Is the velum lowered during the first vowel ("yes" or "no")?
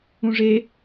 yes